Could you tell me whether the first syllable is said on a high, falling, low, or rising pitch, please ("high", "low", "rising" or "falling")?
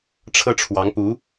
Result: high